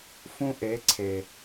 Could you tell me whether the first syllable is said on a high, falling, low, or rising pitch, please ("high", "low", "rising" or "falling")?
high